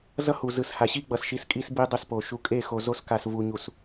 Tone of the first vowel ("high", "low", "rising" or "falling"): high